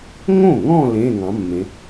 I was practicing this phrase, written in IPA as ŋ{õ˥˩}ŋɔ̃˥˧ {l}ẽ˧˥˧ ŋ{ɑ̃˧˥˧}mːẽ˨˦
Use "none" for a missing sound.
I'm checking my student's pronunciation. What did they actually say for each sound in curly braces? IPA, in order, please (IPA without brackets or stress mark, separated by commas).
õ˥˩, l, ɑ̃˨˦